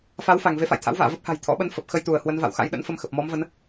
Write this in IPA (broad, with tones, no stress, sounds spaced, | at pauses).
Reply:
f a˨˦ w f a˧˩ ŋ v e˨˦ f a̰˧˨ j t̪ʰ a̰˧˥ w v a̰ː˧˨ v ə˦˥ p̚ h a̤˨˩ j t̪ʰ ɔ̰˧˥ ɓ ə˨˦ n f ə˨˩ p̚ x ə˧ j t̪ u˧˩ ə̯ h w ə˨˦ n v a̰˧˨ w x a̰˧˥ j ɗ ə̰˧˥ n f ə˧ m x ə˨˩ p̚ m ɔ˨˦ m v ə˨˦ n